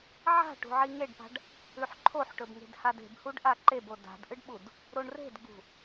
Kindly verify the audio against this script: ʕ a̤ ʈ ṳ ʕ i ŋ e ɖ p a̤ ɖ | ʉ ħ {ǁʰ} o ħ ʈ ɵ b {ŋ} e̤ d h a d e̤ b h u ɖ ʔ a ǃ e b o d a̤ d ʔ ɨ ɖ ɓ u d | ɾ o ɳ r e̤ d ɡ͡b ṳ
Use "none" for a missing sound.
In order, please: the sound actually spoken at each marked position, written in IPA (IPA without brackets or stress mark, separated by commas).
ǃʰ, ŋ